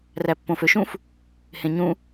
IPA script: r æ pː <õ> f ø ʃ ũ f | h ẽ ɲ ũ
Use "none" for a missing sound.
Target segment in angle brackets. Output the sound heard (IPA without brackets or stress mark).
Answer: õ